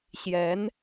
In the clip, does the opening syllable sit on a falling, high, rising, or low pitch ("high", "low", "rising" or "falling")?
rising